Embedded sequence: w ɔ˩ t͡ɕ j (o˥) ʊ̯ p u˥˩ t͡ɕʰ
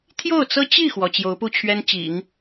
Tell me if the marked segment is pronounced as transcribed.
no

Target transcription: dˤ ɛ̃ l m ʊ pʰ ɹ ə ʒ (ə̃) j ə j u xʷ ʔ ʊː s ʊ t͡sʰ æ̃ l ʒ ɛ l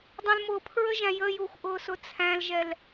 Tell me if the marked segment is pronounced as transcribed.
no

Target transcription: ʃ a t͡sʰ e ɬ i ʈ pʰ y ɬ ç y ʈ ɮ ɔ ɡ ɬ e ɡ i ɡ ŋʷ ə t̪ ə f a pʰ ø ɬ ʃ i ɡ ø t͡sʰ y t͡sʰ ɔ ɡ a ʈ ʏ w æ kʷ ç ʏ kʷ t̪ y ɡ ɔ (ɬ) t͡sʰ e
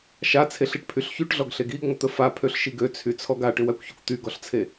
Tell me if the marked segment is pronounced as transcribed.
yes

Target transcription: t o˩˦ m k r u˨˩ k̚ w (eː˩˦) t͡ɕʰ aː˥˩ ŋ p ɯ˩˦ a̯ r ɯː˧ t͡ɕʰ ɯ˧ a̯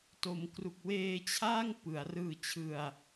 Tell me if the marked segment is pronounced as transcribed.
no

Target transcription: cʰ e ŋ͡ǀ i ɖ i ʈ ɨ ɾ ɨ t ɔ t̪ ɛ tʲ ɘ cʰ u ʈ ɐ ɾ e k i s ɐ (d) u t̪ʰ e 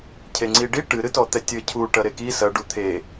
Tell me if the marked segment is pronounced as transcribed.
no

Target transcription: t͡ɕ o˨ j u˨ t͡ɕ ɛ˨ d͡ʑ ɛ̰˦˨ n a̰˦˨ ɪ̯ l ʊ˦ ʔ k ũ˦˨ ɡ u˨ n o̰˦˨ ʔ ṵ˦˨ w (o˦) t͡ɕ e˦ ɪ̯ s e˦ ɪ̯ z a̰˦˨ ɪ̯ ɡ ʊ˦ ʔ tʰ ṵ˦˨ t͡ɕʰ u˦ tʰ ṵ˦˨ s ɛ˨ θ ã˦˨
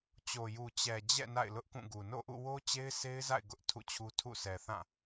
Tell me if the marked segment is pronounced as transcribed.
yes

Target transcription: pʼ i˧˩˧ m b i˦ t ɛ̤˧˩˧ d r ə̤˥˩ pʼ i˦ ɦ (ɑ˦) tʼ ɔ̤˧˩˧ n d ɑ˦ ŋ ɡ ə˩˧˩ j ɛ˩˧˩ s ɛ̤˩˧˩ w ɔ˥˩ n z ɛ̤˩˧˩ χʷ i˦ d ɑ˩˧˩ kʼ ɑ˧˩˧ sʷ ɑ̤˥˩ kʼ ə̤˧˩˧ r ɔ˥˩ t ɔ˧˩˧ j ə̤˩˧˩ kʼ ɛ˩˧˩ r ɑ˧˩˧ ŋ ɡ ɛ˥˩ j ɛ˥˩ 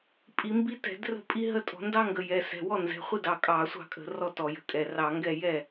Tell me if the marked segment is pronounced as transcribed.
no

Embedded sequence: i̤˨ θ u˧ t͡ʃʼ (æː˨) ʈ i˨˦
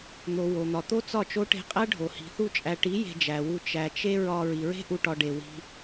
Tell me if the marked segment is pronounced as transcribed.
no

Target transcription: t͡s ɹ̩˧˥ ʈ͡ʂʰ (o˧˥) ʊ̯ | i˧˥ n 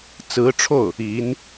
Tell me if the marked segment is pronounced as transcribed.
no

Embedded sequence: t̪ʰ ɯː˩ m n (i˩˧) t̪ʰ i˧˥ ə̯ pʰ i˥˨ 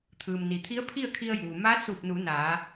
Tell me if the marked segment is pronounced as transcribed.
no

